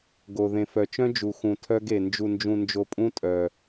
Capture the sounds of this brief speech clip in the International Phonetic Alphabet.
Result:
ɡ o˧ ð ẽ˧ f œ˧ t͡ʃ œ̃˦ d͡ʒ u˧ x ũ˧ tʰ œ˦ ɡ e˧ n d͡ʒ u˧ n d͡ʒ ũ˧ n d͡ʒ o˧ pʼ ũ˦ tʼ œ˧

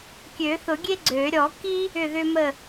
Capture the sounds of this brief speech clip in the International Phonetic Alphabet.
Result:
kʲ ø˨˩˦ θ ʊ˨˩˦ ɡʲ e˦ ɡ͡ǀ ø˨˩˦ ɾʲ ɔ˨˩˦ k i˦ | ʏ˥˨ ð ʏ˦ m ə˥˨

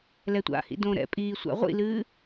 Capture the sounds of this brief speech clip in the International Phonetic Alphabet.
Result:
l ɛ tʷ a̰ h ḭ d õ ɾ ɛ̰ pʼ iː sʷ a̰ ʁʷ ḭ l ɨː

